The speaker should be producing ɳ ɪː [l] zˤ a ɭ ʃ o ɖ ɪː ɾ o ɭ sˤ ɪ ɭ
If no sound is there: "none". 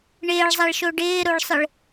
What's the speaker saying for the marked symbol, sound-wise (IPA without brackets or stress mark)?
ɭ